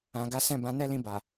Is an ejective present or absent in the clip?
absent